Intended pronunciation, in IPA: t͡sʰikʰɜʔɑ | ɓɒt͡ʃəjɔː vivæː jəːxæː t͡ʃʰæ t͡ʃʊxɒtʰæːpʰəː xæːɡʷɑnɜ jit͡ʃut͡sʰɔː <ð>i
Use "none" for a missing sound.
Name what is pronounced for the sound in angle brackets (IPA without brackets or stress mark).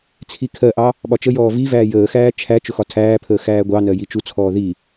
ð